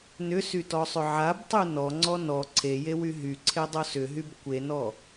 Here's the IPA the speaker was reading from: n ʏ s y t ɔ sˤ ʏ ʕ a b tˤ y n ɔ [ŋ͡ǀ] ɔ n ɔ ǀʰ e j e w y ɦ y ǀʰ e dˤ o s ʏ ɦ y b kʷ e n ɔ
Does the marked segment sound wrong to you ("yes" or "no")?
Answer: no